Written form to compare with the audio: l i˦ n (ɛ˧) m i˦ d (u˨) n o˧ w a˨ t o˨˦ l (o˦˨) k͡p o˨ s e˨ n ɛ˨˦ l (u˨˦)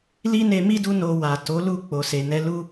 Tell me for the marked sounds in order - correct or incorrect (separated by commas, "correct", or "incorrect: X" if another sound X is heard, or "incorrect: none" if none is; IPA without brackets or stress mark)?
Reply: incorrect: e˧, incorrect: u˦, incorrect: u˦˨, incorrect: u˦